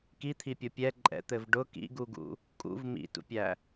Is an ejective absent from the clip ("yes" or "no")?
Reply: no